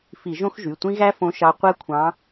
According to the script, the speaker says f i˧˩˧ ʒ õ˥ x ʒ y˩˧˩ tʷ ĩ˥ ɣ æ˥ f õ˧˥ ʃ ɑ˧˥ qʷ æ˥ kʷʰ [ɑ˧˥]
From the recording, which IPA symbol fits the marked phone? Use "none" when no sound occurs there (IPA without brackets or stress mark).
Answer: ɑ̃˧˥